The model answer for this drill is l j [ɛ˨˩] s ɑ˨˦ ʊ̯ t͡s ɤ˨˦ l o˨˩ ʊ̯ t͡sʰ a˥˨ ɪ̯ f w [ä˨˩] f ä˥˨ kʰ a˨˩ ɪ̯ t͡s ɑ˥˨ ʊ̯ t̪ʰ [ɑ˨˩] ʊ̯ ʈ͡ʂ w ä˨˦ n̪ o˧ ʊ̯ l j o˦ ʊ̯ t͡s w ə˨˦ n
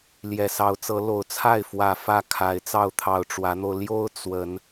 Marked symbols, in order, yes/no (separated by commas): yes, yes, yes